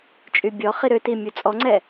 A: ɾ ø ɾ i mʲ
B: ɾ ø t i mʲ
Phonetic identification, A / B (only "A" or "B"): B